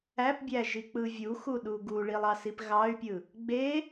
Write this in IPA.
æ p bʲ æ ʒ i k͡p ɯ vʲ u x u ɗ u ɡ u ɭ i lˠ ɑ s i p ɣ ɑ y̯ pʲ ɯ | ɡ͡b e

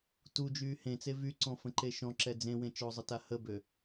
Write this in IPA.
t u d͡ʒ yː h ẽ t͡s e v y ǀ ɔ̃ f ə̃ ǃ e ʃ ɔ̃ ǁ ɛ d͡z ẽ w ẽ t͡ʃ ɔ zˤ ə t a h ə b ø

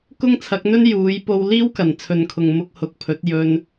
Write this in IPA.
k ʊ˥ ŋ t͡sʰ ɐ˨˥ k̚ n̪ ɵ˥ n j uː˨˧ j p o˧ w l iː˥ w k ɐ˨˩ n t͡sʰ ɵ˨ n kʰ ʊ˨ ŋ m ʊ˧ k̚ h ʊ˨˥ k̚ pʰ ɵ˨˥ t̚ j ɵ˧ n

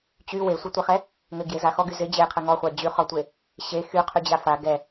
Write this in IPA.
t͡ɕ y w e sʷ ɛ tʷ ɪ χ ɛ | ŋ ɘ ɡ j e z a x ɔ ɡ y z ɪ d͡ʑ e qʰ ɘ ŋ ɔ χʷ a d͡ʑ y χ ɔ tʷ e | ɕ e x y qʰ y d͡ʑ a f a ɡ ɛ

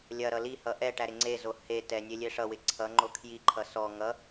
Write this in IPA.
lʲ ɐ ɾ ʌ l i h ʌ ʔ ɛ ʈ æ ɾ ɪ ŋ͡ǀ e z o h e t ɛ nʲ e lʲ e ʂ ʌ w ɪ ǀʰ ʌ ŋ͡ǃ o kʰ j i ǃʰ ʌ s ɔ ŋ ʌ

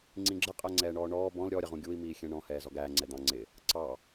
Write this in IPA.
ŋ͡ǀ ĩ ɡ͡ǁ ə qʼ æ ŋ͡ǀ ɛː ɳ ɔː ɳ ɔː b ɔ̃ l ɾʲ ɔ ɾʲ ə ʁ ũ ɡʲ u i̯ m iː xʲ ɛ̃ ɳ ɔ̃ h ɛː z ɔ ɡ æː ŋ͡ǀ ɛ d̪ ɑ̃ ŋ͡ǀ ɪ | ǀ ɑ

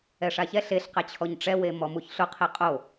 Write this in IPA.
ɛ ʂ a ç ɛ ɬ e ɬ q ɛ t͡ɕʰ ɔ ɲ ʈ͡ʂ ɛ w e m ɔ m u ç ɬ ʊ qʰ i qʼ o

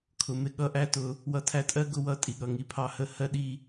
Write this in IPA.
kʰ ʊ˨ m ɪ˧ ɠ ʌ˧ ʔ æ˦ t ʊ˧ | w ʌ˧ tʰ æ˧ tʼ ɜ˦ ɡ ʊ˦ w ʌ˦˨ tʼ i˨ ɠ ʌ˨ ŋ i˨ pʰ ɑ˧ h ə˦ h ɜ˧ ɗ i˧

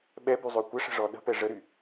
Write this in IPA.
ɓ ɛ b y zˤ ø kʷ ə ʂ ə̤ ʐ ɔ ɗ ə̤ p ɛ ʐ ə ɾ y

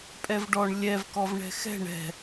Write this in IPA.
pʼ ɛ v ɖ ɔ ɳ lʲ ɛ v k ɔ v ɳ ɛ̤ x ɛ̤ ɳ ɛ̤

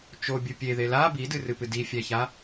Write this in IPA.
t͡ʃ o bʲ ɯ pʲ e ð e l a b i d ɨ r ɨ p ɨ d i fʲ æ ç a

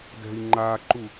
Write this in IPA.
d ɛ̤ i̯ ŋ͡ǃ a ǃ u

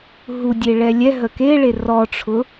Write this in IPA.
ɦ u dʲ e ɭ ɛ lʲ ɛ ɦ ə k e ɭ e r ɔ ʈ͡ʂʰ ʊ

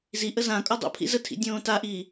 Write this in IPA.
z i ʔ ə z ã kʼ ɔ dˤ o̰ pʰ ḭ z ə tʰ ḭ dʲ õː t a ʔ iː

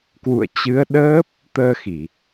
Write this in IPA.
k w ṵ˧˨ ə̯ t͡ɕ ɨ˨˦ ə̯ ɗ əː˦˥ p̚ | t̪ əː˧ x i˧˩˨

